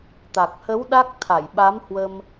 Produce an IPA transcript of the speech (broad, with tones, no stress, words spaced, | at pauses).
t̪a˨˩k̚hə˨˦w ɗa˦˥k̚ t̪ʰa˧˩jɓa˨˦m hwə˧m